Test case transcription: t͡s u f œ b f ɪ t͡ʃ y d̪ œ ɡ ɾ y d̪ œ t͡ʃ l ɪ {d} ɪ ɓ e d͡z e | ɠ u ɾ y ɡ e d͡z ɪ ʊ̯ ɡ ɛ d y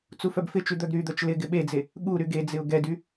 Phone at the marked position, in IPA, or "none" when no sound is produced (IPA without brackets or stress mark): ɡ